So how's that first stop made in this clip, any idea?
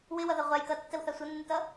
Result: plain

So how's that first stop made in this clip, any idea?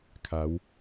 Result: aspirated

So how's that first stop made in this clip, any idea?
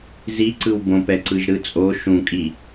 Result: click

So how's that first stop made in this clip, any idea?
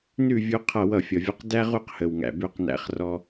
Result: aspirated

